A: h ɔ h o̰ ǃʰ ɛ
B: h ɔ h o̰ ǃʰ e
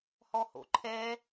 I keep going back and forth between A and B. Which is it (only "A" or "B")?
A